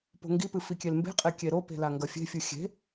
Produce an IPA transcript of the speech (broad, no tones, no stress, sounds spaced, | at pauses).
p o̤ ŋ ɡ i p ɨ f i kʲ e l m b e̤ qʼ e kʲ e ɾ o p e̤ l a ŋ ɡ ɐ fʲ e̤ fʲ ɨ xʲ e̤